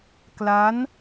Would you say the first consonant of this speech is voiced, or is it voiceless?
voiceless